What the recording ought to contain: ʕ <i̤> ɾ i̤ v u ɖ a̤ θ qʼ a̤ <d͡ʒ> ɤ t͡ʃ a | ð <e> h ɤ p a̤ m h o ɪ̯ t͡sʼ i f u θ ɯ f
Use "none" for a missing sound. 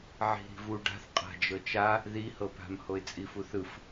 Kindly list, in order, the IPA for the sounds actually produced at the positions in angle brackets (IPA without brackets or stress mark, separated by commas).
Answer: i̤, d͡ʒ, i